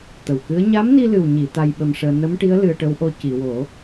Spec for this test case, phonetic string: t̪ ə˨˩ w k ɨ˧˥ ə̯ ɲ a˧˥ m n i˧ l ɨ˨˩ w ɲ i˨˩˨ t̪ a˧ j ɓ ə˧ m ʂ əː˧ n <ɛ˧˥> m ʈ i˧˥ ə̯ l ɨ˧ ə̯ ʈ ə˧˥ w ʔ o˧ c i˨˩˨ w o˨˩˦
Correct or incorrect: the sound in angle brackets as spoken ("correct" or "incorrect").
incorrect